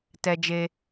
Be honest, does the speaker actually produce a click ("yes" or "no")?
no